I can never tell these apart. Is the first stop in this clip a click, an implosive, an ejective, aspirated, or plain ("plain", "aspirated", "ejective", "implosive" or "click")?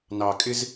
ejective